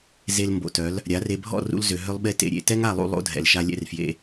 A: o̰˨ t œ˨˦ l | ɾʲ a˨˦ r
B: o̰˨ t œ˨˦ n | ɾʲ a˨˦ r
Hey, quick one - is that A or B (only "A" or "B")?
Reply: A